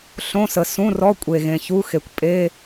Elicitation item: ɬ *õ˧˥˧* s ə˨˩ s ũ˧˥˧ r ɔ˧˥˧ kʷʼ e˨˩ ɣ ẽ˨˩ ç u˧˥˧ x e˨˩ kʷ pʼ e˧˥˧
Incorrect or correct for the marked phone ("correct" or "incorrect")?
correct